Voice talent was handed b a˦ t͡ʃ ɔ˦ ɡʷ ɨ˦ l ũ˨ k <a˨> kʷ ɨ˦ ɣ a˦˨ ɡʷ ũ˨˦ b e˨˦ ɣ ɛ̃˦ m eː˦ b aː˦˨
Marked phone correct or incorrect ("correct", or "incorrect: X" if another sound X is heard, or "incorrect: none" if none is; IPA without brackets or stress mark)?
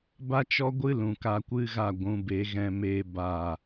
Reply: incorrect: a˧